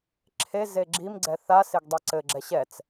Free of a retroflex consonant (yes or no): yes